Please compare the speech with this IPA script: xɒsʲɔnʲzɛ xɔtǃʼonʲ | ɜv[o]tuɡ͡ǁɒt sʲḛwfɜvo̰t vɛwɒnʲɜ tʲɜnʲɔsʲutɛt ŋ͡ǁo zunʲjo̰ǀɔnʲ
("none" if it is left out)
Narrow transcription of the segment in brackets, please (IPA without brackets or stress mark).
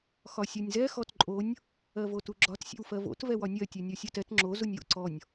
o